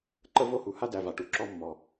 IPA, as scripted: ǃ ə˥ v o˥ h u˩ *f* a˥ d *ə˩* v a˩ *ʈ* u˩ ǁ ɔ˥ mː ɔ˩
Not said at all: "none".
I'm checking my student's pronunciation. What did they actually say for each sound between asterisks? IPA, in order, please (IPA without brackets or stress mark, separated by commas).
h, æ˩, ʈ